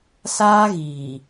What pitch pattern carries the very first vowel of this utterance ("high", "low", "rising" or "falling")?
high